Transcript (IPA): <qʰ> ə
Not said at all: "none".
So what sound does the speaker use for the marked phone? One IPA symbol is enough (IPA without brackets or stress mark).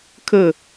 kʰ